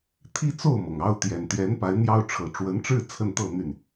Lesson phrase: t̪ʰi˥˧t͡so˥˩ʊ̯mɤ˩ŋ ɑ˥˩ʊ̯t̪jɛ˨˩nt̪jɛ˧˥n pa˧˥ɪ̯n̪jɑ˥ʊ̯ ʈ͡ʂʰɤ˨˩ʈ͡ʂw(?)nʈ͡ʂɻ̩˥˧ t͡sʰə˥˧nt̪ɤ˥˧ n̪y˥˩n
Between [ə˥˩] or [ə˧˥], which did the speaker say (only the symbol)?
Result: ə˧˥